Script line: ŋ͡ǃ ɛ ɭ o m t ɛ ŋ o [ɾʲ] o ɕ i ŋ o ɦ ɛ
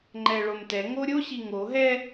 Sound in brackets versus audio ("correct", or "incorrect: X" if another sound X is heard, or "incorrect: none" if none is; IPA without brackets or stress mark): correct